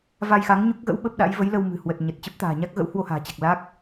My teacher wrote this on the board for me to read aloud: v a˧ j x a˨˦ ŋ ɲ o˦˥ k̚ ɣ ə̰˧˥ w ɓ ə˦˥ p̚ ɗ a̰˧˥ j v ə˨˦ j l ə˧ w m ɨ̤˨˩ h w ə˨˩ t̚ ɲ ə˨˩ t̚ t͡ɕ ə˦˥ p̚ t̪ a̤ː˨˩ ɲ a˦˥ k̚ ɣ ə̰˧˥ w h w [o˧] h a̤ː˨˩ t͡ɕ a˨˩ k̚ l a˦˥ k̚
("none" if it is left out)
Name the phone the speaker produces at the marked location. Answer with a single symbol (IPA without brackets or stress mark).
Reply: o˧